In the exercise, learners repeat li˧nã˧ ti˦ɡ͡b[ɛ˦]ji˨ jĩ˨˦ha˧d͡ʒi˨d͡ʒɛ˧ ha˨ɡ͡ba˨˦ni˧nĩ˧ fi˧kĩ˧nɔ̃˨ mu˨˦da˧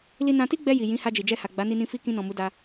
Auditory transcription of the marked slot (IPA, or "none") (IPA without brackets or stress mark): ɛ˧